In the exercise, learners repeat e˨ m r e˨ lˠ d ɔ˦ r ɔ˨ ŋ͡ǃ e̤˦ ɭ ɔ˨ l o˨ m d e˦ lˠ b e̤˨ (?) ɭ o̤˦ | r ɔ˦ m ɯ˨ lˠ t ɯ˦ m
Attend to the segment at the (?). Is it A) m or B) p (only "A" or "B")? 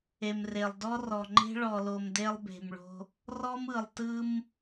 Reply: A